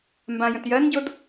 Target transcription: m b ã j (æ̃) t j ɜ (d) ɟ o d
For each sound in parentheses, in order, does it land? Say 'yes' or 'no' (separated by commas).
no, no